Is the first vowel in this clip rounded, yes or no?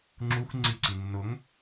yes